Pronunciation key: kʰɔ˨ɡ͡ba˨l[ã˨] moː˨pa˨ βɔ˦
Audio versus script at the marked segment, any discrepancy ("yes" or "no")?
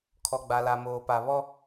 yes